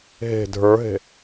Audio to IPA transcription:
ɦ e̤ dʱ ə˞ ɦ e̤

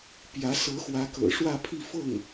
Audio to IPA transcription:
p j ä˧˥ s ɤ˧˥ x w ä˧˥ k ɤ̰˨˩ ʂ w ä˥˧ pʰ i˥˧ f ɤ˥˩ ŋ

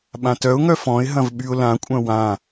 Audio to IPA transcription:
ɓ ã t œ ʊ̯ ŋ œ f ɔ̃ ɪ̯ ɦ ɐ̃ v ɓ y ʊ̯ l ã kʷʼ œ̃ w ã

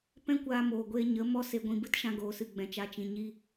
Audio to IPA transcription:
p ɛ̃˦ kʷ aː˧ m oː˨ ɡʷ eː˧ ɲ ə˨˦ m ɔ˦ s e˧ ɡʷ ĩ˧ b ɨ˦ t ʃ ã˧ ɡ oː˨ s ɨ˨ ɡ͡b ɛ̃˨ t͡ʃ a˧ t͡ʃ ĩ˨ ɲ i˦

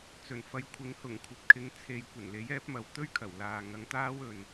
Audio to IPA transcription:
t͡s ɵ˨˩ n f ɐ˨˧ j kʷʰ ɪ˨˧ ŋ h ʊ˨˩ ŋ kʷʰ ɐ˨ p̚ kʰ ɪ˨˧ ŋ t͡sʰ e˨ j kʷ ɐ˨˩ n l e˨˥ j ɛː˨˥ p̚ m ɐ˨ w t̪ ɵ˥ ɥ kʰ ɐ˨˩ w l aː˨ ŋ ɐ˨˧ ŋ t̪ aː˥ w ɵ˨ n

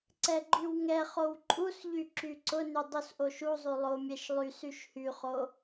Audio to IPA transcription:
ǀ ɛ ɡ͡ǃ y w ŋ ɛ χ o w ǃʼ u s ʎ y ǁ y ǀ ʊ n y dˤ u s ʔ o ʃ u zˤ y lˠ o mʲ ɛ ʃ lˠ y s y ʃ h y χ o

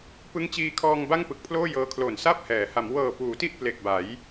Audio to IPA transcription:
p ɯ˦˥ ŋ t͡ɕ iː˧ kʰ ɔː˧ ŋ b a˥˩ ŋ p ɯ˨˩ k̚ pʰ l oː˥˩ j ɤː˧ kʰ l o˨˩ n s a˥˩ p̚ h ɛː˩˦ h a˩˦ m w ɤː˨˩ p uː˩˦ t i˥˩ ʔ p l e˨˩ k̚ b a˩˦ j

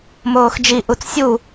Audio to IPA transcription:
m oː x d͡ʒ i ʔ u t͡s sʲ u

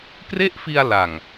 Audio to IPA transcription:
k r e˥˩ ʔ f i˧ a̯ l a˨˩ ŋ

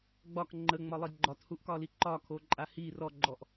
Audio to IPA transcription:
ɡ͡b ɒ k ŋ͡ǃ ə ŋ͡m ɒ lˠ i ɡ͡ǃ ɒ t h u ʔ k ɒ l i ǃ ɒ kʰ o ǃʼ a h i r ɔ ɡ͡ǃ ɔ ʔ

